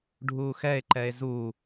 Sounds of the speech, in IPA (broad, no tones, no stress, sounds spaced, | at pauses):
ɖʱ uː x ɛ e̯ ǃ ɛ e̯ z u